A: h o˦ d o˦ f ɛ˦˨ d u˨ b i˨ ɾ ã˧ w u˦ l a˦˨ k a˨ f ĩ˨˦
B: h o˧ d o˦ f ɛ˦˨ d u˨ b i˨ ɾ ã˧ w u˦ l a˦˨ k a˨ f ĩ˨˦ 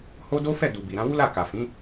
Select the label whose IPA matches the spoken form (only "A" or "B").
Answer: A